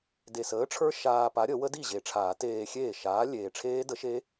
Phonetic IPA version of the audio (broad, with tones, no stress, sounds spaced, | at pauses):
d e˨˩ s əː˨˥ ʈ͡ʂʰ ə˞˦˥ ʃ aː˧ p a˨˥ ɾʲ ə˨˩˦ w ə˦˥ d i˥˩ ʑ e˨˩ ʈ͡ʂʰ aː˨˩˦ t eː˧ xʲ eː˥˩ ʃ aː˨˥ lʲ eː˨˩ ʈ͡ʂʰ eː˦˥ d ə˨˥ ʃ e˦˥